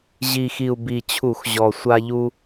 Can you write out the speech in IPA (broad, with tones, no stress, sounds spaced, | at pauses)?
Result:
ʑ i˨˩ x i˨˩ u̯ b i˨˩ t͡ɕʰ u˧˩˧ x ʑ ɔ˨˩ sʷ a˦ ʎ u˦